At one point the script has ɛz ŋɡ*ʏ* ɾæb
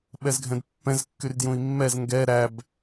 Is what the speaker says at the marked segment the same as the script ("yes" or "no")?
no